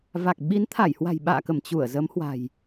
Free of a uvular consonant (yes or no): yes